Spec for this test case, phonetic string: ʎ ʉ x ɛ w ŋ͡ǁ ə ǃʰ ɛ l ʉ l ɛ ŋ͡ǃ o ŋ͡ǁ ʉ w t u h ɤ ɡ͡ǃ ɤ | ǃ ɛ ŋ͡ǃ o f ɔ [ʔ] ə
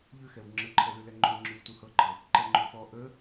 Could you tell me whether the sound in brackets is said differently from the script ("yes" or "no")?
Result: no